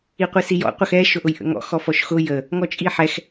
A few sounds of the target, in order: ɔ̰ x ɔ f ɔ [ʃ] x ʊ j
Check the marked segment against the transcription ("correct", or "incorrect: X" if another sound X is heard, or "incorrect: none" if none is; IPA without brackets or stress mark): correct